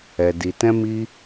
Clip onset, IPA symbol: ɛ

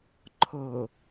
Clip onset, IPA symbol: ǃʰ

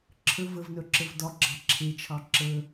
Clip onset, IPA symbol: ǁʰ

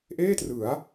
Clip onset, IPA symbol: ʔ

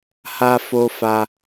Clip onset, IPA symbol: h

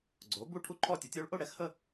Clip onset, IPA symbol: ɡ͡ǀ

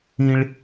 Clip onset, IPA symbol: ĩ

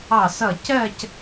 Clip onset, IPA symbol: ɑ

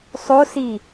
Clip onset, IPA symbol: sˤ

